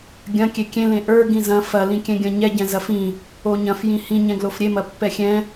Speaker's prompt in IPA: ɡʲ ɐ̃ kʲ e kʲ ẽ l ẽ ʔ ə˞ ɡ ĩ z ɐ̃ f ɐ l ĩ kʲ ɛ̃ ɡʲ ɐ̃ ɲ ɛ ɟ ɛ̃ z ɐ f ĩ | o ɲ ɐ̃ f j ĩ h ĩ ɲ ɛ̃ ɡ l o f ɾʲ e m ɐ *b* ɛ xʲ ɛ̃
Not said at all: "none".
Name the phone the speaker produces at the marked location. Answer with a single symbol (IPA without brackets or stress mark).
pː